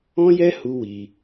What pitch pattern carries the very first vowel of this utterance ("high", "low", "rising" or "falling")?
high